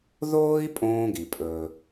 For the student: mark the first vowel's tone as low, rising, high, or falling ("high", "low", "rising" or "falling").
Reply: high